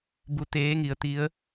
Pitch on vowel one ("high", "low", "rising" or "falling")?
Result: rising